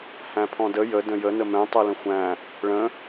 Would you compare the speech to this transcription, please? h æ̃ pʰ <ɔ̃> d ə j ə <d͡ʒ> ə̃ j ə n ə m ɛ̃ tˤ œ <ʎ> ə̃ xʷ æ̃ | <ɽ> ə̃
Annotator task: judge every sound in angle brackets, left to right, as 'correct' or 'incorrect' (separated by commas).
correct, incorrect, incorrect, incorrect